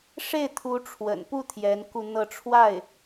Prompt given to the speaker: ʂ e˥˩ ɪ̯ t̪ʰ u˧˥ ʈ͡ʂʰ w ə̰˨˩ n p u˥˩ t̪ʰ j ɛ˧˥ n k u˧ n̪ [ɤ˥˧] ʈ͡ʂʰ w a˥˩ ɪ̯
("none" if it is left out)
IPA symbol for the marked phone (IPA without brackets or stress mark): ɤ˥˧